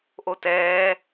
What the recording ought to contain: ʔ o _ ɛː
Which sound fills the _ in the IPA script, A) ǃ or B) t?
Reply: B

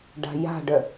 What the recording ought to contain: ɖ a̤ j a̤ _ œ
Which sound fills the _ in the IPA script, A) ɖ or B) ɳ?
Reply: A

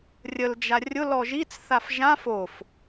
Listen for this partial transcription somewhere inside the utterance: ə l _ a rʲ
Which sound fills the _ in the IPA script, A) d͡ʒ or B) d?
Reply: A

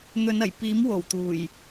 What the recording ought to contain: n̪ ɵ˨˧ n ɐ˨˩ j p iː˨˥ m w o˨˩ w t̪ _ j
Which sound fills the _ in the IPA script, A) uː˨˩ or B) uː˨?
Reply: A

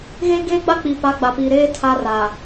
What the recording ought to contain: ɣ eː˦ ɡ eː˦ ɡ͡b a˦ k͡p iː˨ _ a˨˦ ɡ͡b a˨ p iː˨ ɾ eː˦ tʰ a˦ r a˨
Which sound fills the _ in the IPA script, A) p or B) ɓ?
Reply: A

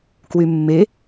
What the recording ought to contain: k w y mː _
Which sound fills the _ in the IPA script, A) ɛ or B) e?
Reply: B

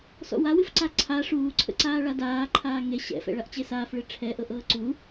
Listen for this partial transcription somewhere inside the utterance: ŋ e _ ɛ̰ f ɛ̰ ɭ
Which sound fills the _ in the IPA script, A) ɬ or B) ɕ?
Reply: B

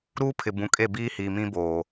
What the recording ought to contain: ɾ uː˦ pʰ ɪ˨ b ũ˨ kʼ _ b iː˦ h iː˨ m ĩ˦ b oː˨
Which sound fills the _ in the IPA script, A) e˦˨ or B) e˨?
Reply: A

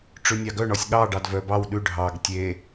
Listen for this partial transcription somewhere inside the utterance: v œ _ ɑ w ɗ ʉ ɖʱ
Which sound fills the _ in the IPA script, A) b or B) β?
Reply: A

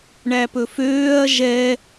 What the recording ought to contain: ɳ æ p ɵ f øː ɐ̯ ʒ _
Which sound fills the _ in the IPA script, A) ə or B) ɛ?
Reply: B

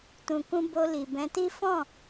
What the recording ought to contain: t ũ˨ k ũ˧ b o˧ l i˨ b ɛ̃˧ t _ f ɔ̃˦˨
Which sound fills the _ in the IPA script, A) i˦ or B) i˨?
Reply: A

